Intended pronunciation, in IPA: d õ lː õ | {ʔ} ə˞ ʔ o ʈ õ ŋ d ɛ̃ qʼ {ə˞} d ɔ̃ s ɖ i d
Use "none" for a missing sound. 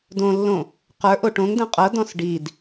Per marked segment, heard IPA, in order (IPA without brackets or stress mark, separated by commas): q, ɤ